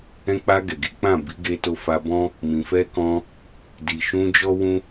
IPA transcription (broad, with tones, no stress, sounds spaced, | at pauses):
ɛ̃˧ k͡p a˧ ɡ ɛ˨ ɡ i˨˦ k͡p ã˦˨ b i˨˦ ɡ e˧ t o˧ f a˧ b ɔ̃˦ | m ĩ˨ f ɛ˧ k ɔ̃˧ | d i˨ ʃ ũ˧ d͡ʒ ɔ˦ w ũ˦